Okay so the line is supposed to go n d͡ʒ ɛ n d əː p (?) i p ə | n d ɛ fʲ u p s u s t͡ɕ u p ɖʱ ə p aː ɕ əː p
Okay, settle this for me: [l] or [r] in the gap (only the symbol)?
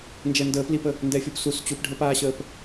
l